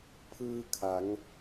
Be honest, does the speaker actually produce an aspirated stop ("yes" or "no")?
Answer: yes